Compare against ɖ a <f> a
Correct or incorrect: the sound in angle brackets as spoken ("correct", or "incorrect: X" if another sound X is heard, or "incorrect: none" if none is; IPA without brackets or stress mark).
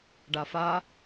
correct